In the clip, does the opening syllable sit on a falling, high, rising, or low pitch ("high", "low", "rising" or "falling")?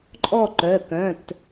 falling